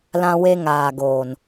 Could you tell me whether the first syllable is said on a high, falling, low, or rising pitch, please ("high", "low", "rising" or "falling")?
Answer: high